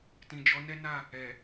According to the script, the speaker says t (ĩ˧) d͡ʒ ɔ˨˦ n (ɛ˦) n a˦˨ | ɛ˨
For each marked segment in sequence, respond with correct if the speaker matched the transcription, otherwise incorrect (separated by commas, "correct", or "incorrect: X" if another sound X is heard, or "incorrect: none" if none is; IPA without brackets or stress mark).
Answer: incorrect: ĩ˨, correct